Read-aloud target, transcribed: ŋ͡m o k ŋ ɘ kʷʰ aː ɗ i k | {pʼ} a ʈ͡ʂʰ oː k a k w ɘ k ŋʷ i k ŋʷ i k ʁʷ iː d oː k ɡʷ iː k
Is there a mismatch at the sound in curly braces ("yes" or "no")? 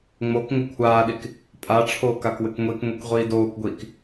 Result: no